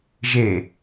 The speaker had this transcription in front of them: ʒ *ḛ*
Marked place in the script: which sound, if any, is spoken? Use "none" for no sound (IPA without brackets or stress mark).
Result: e